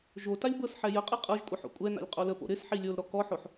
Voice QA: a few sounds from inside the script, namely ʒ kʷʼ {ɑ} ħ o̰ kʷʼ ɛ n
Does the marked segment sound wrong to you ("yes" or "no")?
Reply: yes